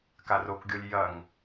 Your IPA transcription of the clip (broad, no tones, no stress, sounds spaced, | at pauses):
k a r o k ɡʲ o lʲ j ɐ ŋ